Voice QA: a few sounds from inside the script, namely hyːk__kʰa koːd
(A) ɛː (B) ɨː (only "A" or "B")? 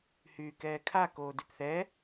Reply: A